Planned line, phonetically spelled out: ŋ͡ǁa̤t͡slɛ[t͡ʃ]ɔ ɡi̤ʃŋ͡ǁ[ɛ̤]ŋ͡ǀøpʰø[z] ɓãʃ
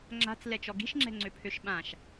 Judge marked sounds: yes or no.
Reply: yes, yes, no

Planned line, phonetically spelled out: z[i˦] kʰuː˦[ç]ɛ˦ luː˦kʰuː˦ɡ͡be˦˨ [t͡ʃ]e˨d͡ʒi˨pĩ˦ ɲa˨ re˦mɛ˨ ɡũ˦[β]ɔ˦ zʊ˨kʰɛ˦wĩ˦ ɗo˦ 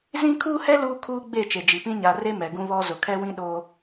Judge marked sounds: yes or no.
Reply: no, no, yes, yes

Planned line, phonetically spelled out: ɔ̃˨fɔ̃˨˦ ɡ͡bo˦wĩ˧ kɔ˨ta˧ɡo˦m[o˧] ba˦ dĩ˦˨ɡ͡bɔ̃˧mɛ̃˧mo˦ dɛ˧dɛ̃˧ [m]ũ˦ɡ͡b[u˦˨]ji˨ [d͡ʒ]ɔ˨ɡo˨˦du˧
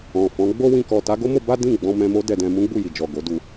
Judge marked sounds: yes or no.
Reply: yes, yes, yes, yes

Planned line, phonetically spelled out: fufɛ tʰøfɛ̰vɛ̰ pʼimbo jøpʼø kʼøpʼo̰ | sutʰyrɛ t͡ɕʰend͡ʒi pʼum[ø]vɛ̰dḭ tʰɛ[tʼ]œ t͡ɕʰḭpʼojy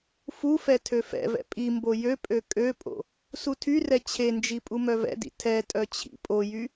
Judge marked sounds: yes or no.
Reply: no, yes

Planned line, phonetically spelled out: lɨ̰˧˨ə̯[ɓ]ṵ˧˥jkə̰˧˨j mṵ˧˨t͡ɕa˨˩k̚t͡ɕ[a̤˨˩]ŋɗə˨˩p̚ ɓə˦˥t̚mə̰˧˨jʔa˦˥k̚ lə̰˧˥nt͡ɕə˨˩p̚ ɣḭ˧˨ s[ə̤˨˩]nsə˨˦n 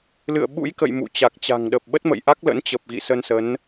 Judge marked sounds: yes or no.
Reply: yes, yes, no

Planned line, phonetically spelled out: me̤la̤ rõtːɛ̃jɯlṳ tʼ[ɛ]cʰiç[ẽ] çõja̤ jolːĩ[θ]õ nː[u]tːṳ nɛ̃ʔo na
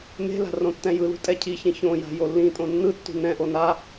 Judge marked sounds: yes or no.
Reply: yes, no, no, no

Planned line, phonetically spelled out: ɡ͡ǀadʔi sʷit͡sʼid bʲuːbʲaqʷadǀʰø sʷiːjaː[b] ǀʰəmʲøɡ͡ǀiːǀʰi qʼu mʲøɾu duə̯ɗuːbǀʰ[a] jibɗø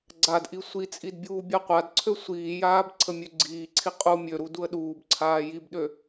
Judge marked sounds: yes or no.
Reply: yes, no

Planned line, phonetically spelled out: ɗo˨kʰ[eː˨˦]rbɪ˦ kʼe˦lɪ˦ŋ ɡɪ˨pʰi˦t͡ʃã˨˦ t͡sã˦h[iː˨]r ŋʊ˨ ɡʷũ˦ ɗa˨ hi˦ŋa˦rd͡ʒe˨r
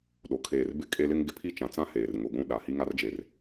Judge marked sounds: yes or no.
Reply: no, no

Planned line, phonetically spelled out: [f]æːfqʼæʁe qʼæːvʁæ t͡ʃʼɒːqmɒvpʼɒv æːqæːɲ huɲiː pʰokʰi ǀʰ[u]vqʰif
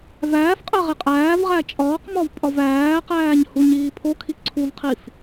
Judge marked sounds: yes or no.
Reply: no, yes

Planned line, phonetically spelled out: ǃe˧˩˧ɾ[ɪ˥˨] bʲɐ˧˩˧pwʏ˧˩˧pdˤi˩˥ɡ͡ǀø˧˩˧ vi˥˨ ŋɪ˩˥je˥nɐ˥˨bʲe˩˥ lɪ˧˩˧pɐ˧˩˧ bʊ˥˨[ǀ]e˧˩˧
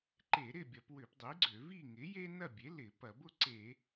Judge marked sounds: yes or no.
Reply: yes, yes

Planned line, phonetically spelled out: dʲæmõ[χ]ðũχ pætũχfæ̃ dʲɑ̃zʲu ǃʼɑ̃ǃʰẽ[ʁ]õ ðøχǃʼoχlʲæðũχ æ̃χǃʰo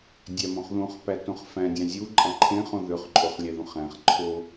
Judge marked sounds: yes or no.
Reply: yes, no

